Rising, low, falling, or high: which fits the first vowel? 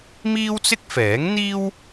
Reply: high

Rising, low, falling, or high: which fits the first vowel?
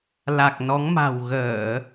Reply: low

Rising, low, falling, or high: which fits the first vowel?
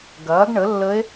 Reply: rising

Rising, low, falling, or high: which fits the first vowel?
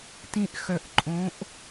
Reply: low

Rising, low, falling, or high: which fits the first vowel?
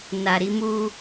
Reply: low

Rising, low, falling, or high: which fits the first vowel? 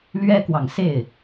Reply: high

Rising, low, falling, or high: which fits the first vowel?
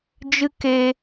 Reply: high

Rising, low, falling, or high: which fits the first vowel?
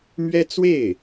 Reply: high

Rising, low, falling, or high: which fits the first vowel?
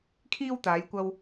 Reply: high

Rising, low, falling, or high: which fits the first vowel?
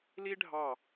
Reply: high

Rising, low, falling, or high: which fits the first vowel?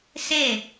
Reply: falling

